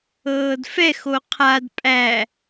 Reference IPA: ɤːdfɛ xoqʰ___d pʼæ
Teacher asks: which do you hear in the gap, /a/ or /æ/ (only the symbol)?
a